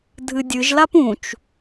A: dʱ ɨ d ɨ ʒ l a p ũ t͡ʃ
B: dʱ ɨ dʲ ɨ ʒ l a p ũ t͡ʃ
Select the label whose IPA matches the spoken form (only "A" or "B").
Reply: B